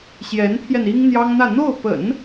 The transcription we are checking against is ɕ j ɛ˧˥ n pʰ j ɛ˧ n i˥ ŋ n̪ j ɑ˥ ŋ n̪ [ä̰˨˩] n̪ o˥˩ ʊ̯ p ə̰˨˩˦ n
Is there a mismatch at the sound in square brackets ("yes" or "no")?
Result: yes